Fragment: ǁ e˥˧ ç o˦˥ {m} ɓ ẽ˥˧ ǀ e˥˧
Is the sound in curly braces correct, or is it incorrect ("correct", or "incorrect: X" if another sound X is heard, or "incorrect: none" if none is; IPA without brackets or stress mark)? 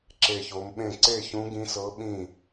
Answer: correct